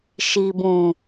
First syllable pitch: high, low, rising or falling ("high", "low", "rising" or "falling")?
low